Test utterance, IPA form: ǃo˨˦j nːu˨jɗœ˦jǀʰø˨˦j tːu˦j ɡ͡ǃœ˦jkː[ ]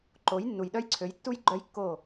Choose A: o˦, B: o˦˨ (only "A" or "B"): B